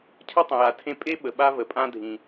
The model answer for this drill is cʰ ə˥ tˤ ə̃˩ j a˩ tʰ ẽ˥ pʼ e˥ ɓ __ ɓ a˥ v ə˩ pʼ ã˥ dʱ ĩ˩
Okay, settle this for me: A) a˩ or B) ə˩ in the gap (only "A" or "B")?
B